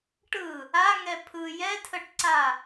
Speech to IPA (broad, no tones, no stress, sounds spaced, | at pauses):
ʈ ɯ | a ŋ ɛ pʰ ɯ j ɛ tʰ ə ʈ ǀ a